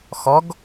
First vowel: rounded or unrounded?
rounded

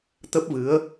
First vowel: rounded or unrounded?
unrounded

